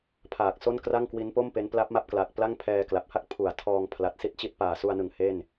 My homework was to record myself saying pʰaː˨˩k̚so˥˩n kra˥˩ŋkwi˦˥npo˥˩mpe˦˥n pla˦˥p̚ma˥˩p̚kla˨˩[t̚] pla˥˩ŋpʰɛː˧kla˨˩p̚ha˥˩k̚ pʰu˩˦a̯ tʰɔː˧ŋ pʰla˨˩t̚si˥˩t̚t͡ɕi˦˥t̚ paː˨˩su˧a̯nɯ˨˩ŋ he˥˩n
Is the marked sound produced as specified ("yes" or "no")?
no